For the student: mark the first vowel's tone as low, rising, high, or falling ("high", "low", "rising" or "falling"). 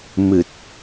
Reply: low